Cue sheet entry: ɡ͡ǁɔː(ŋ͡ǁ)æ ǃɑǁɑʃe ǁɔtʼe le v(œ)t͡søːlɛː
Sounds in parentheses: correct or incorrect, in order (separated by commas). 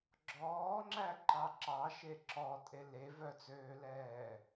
correct, correct